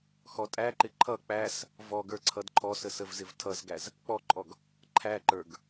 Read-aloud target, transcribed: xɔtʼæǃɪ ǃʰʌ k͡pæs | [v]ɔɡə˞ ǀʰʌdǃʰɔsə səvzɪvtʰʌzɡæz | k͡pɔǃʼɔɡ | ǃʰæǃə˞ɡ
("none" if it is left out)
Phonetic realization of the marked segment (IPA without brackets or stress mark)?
v